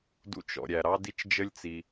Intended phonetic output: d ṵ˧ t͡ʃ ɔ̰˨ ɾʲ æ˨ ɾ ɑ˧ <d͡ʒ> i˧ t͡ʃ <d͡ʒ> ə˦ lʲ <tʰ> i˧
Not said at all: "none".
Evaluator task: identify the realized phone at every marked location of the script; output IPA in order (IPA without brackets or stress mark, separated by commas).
d, d͡ʒ, t͡s